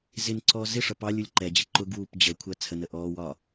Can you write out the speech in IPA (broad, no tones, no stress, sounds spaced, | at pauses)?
z ɪ n ǀ ɔː z ɪ ʂ ʌ p ɑ lʲ u lʲ ǃ ɛ d͡ʑ ɪ ǃ ʊ ɡ w uː p d͡ʑ ə kʷʰ ɜ t͡sʰ ə n ə ʔ ɔː w ɒ